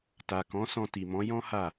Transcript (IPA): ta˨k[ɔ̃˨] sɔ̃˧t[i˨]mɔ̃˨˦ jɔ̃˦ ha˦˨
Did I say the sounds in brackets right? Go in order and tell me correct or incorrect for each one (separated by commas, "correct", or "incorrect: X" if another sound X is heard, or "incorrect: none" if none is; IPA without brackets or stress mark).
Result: incorrect: ɔ̃˨˦, correct